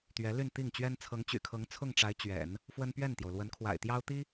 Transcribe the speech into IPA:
t̪ ɥ ɛ˧˥ l y˥˧ n t̪ i˥˩ ŋ t͡ɕ ɥ ɛ˥ n t͡sʰ ɤ˧˥ ŋ t͡ɕ y̰˨˩ kʰ ɤ˧˥ ŋ t͡sʰ ʊ˥˩ ŋ ʈ͡ʂ a˧˥ ɪ̯ t͡ɕ ɥ ɛ̰˨˩˦ n | f w ə˥ n p ɥ ɛ˥˩ n t̪ j o˩ ʊ̯ l w ə˧˥ n kʰ w a̰˨˩ ɪ̯ t̪ j ɑ˥ ʊ̯ t̪ i˥

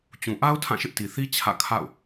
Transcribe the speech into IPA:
t͡ɕ ũ˨ ʔ a˦ ʊ̯ tʰ ã˦˨ ʃ ɪ˦ ʔ t i˨ θ i˦ t͡ɕʰ ä̰˦˨ kʰ a̰˦˨ ʊ̯

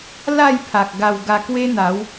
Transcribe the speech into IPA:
l a˥˧ j pʰ a˨ k̚ ɡ a˧ w ɡ a˧ k w e˦ n̪ a˨˦ w

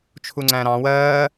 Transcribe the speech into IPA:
t͡ʃʰ u ŋ͡ǀ æ̃ ɾ ɑ̃ w ɜː

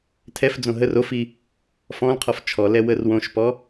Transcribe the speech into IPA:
tʰ ɛ f d͡z õ ɦ ə r o f i | f ɔ̃ l qʰ ɔ f t͡ʃʰ ɔ l ɛ w ə r w õ ʃ p ɔ

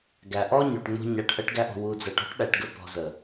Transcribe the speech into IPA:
ɡ æ˨ ʔ ɔ˦ ɲ o˨ ʈ ŋ͡m o̤˧ ɲ a˨ ʈ ʔ ə˧ ʈ ɡ æ˧ ʔ o̤˨ w u˨ d͡z æ˨ ʈ ɔ̤˦ ʈ ɗ æ˨ ʈ ɡ ə˧ p ɔ̤˨ z ə˨

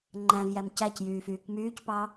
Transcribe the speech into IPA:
ŋ͡ǃ æ̃ v j æ m c æ c j yː f yː k m yː c p ɑ

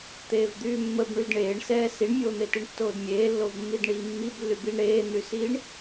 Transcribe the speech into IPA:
t̪ eː v d̪ yː mː ə b ɳ y d ɳ eː ɳ s ɛː s i ɳ mʲ oː n̪ e t i ɳ tː oː d mʲ eː lː o v mː i d ɳ iː mː i b lː y b i ɳ ɾ eː n̪ y s iː ɳ

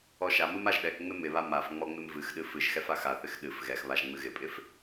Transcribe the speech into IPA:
ɔ ʃ a m ɨ m a ʒ ɗ ɛ k ŋ͡m ɪ m ɪ β a m a f ŋ͡m ɔ ŋ͡m ɪ m v ɨ x ɗ ɨ f ɨ ʒ x ɛ f a x a θ ɪ x ɗ ɨ f ɣ ɛ x β a ʒ ŋ͡m ɨ ɣ ɪ pʼ ɪ f

